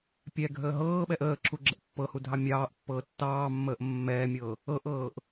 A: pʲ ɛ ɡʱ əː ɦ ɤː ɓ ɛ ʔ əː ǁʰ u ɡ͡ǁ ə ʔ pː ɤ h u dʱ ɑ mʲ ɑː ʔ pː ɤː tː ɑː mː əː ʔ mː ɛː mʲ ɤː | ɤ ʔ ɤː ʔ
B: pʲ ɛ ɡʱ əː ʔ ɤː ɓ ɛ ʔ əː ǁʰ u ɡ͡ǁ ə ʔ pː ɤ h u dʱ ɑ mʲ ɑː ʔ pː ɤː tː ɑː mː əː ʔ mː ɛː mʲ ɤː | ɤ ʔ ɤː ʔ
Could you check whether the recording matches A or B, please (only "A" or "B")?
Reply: A